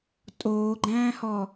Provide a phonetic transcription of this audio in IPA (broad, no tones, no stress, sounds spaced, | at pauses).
tʼ oː ɡ͡ǃ æ̃ː h ɔ